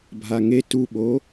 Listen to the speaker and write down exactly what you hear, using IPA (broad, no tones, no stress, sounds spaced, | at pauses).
bʱ a ŋ e t u ɓ o